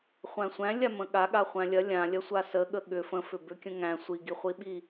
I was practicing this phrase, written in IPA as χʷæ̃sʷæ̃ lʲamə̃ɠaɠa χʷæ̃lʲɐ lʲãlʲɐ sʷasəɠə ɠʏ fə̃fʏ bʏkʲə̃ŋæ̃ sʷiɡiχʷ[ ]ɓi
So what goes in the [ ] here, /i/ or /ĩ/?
i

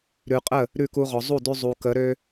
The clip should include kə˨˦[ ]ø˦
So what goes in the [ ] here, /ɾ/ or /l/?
ɾ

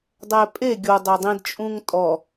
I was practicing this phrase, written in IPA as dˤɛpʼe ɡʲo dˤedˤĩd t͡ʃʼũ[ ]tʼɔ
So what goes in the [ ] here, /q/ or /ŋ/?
ŋ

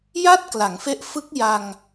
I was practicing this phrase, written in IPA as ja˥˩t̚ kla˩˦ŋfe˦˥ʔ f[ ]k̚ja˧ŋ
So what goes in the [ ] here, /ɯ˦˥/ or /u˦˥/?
ɯ˦˥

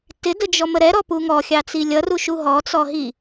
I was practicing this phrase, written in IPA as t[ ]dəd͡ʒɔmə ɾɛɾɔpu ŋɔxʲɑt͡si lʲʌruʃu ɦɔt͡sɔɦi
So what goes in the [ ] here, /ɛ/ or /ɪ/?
ɪ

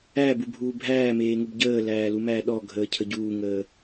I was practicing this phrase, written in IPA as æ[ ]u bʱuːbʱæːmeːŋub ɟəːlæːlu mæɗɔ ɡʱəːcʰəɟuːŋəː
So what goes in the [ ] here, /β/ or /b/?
b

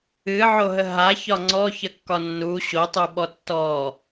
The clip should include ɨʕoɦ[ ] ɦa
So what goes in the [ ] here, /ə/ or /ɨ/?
ə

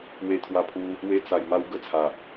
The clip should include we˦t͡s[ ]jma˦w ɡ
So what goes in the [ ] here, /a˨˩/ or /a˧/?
a˧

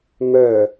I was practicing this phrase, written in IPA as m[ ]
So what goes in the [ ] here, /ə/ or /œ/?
œ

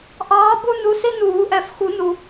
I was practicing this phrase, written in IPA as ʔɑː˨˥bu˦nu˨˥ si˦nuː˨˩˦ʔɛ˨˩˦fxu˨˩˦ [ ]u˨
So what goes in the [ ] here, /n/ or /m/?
n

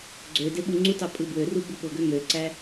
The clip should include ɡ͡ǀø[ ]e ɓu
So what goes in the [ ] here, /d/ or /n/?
d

